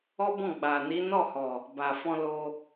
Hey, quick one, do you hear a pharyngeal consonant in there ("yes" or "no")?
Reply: no